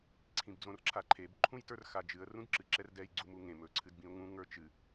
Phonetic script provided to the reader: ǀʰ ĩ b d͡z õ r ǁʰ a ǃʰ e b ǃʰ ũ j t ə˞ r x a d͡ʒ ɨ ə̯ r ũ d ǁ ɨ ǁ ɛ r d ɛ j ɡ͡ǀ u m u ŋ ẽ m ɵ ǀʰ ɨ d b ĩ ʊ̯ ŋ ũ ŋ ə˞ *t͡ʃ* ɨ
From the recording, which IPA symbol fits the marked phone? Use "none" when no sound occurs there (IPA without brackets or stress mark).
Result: t͡ʃ